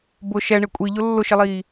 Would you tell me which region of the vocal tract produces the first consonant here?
lips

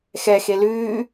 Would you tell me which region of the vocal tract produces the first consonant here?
velum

